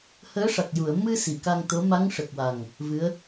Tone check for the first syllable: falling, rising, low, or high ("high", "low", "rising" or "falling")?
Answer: rising